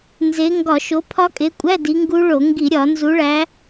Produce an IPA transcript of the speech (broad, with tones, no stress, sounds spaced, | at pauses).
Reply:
n z e˨˦ ŋ ɡ ɒ˧˩˧ ʃ o˨˦ pʰ ɒ˦˥ kʼ e˨˦ kʷʼ æ˧˥˧ d i˨˦ ŋ ɡ u˦˥ ɭ o˧˩˧ ŋ ɡ i˧˩˧ ɾʲ ɒ˧˩˧ n z u˨˦ ɭ æ˨˦